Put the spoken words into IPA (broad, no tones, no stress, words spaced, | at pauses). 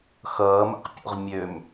xʌːmɛ̰qpʲo̰ʁ mʲøm